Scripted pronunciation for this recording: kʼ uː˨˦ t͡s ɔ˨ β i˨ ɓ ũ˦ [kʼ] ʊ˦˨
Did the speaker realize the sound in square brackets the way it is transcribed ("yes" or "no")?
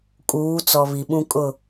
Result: yes